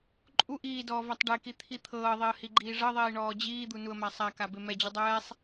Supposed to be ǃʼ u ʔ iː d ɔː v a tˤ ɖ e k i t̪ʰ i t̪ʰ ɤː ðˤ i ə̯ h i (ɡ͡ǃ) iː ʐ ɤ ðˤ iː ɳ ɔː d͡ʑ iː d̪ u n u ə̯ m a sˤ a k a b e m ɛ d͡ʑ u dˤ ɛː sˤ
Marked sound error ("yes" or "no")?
no